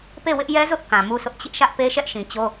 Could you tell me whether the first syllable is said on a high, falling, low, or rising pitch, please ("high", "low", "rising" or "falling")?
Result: falling